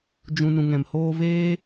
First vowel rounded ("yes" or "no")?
yes